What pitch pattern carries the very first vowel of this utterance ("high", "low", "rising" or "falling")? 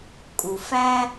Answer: low